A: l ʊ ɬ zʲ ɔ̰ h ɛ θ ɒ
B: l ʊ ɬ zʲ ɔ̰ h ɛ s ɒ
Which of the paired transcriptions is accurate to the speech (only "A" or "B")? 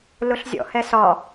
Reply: B